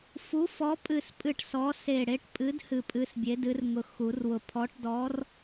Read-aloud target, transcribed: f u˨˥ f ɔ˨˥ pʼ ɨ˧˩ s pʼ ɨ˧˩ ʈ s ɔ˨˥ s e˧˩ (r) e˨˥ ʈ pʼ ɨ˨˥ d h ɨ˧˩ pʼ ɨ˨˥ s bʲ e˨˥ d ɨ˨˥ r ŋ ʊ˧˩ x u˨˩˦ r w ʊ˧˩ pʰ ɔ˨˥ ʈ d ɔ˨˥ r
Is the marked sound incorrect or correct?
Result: incorrect